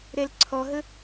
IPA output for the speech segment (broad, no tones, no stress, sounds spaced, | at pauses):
ɾ ɛ l ǀʰ ɔ ɦ ə